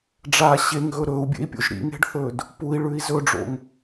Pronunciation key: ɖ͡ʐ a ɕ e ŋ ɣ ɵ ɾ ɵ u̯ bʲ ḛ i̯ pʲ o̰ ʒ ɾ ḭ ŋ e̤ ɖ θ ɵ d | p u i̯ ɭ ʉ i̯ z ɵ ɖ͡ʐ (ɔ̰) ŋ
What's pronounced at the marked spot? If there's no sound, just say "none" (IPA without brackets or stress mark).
o̰